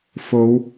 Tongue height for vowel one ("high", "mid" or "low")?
mid